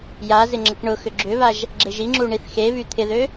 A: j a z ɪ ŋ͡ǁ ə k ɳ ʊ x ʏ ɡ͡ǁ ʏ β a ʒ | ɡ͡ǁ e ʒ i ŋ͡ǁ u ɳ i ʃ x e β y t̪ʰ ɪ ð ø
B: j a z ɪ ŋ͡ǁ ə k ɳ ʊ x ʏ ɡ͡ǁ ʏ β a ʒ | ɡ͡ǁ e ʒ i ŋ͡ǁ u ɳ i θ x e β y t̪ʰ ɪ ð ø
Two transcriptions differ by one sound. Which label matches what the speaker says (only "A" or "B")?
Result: B